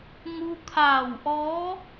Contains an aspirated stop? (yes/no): yes